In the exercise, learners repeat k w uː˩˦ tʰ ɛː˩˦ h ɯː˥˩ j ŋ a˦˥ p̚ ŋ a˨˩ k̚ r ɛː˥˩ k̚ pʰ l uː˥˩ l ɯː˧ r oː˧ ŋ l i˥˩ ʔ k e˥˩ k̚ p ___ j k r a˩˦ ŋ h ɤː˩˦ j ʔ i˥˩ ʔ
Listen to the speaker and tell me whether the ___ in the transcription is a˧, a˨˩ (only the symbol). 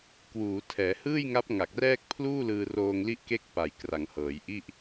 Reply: a˨˩